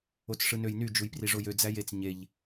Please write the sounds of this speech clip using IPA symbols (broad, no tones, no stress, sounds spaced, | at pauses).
o t͡s ʂ ɯ n ø j n y d͡ʒ u j p r i ʐ o j ø d͡z æ j e t͡s ɲ e ʎ